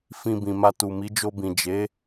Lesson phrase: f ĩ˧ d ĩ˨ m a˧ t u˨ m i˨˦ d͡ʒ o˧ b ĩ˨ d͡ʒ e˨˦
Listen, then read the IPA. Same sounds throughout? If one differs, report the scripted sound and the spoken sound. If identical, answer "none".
d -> b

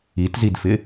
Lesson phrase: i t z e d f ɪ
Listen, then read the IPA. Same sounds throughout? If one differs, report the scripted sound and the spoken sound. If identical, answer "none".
e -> i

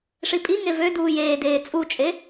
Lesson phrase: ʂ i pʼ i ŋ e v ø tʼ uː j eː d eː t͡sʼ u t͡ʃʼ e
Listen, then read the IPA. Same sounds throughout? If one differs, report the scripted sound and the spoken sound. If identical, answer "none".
tʼ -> d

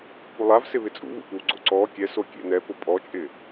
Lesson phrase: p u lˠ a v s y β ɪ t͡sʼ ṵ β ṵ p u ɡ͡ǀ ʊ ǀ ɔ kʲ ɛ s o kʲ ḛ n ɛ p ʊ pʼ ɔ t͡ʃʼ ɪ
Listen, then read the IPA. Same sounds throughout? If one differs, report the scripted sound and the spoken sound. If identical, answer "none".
y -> ɪ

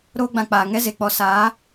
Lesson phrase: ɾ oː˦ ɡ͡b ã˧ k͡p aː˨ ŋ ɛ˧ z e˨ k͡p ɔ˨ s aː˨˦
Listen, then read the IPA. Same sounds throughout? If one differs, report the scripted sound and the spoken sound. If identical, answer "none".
none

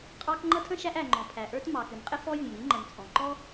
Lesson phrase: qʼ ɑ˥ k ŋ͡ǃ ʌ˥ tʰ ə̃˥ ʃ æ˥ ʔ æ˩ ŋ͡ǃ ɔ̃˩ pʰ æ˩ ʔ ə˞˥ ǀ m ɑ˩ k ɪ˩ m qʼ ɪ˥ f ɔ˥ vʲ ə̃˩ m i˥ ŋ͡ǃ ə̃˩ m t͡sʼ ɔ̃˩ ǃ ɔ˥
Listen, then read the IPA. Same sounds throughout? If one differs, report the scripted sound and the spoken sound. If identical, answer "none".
ǀ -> t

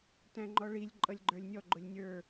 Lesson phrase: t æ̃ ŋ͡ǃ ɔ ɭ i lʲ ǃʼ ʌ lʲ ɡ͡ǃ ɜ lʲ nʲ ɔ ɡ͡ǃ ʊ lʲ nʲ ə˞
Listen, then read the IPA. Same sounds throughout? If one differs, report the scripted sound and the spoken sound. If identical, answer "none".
ɜ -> ə˞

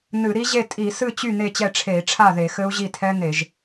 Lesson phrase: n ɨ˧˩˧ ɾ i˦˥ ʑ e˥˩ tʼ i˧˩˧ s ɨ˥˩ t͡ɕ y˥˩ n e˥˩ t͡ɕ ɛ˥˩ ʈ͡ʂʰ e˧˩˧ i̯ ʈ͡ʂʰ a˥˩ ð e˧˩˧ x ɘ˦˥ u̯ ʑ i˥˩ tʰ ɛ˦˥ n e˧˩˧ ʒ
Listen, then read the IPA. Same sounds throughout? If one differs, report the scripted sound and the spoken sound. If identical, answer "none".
none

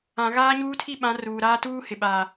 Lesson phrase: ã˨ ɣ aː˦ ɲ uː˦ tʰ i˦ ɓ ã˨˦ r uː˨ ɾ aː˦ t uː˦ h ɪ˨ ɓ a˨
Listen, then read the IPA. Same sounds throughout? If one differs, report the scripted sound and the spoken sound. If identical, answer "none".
none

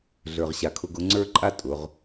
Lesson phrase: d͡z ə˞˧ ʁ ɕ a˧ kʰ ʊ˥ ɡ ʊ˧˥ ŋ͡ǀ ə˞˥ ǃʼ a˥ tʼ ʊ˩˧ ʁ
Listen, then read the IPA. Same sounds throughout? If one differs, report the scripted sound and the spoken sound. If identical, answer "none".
d͡z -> ɮ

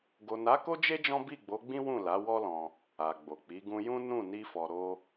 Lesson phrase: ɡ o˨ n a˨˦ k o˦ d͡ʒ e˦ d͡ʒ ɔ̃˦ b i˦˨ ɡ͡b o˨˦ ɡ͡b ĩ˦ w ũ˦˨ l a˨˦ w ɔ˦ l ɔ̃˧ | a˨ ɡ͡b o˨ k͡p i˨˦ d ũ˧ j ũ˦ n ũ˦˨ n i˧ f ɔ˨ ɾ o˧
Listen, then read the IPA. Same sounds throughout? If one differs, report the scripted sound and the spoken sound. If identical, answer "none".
d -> ɡ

